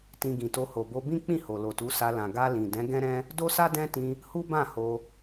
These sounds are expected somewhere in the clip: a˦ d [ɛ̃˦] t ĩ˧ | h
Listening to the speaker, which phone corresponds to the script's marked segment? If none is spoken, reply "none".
ɛ̃˦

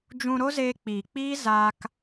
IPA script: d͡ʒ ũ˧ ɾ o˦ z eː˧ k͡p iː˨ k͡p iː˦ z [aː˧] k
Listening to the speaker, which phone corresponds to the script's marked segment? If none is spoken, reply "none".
aː˧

